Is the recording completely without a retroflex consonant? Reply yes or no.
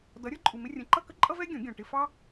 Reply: no